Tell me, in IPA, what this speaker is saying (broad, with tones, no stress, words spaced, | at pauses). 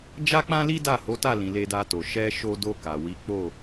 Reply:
d͡ʒa˦k͡pã˦li˦da˦˨ ho˨˦ta˦˨lĩ˨ le˧da˧to˨ ʃɛ˧ ʃo˧do˧ ka˨wi˨˦ k͡po˦˨